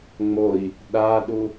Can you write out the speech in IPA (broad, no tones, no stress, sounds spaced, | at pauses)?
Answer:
ŋ͡m o i̯ | ɗ a ɗ u